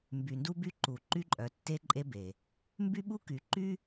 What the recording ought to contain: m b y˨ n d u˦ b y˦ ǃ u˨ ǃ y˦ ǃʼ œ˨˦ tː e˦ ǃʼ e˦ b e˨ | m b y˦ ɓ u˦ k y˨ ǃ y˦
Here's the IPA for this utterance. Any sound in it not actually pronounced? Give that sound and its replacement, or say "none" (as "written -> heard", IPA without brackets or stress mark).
none